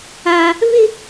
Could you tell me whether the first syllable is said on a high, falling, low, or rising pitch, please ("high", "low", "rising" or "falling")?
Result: high